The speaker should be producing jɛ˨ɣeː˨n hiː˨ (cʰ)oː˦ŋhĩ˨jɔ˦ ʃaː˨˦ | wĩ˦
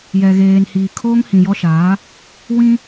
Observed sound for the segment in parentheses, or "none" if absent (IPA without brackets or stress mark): kʰ